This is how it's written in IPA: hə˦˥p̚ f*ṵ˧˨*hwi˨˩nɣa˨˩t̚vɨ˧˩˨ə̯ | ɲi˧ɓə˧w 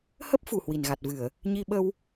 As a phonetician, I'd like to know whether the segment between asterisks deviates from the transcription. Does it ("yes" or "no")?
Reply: yes